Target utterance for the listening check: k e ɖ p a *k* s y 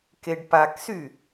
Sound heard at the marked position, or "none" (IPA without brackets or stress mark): k